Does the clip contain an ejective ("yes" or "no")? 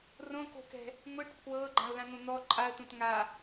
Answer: yes